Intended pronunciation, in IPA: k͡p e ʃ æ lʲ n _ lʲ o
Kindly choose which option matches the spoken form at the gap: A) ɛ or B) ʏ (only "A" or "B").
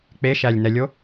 A